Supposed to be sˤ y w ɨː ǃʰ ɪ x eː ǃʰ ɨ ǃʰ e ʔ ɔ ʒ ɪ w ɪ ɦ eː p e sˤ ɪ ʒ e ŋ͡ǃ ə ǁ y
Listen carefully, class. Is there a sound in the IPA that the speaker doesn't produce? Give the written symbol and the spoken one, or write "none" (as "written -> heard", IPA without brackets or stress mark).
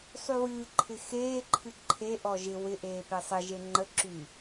ɦ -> ʔ